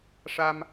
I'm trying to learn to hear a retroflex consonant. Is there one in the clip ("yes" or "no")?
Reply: yes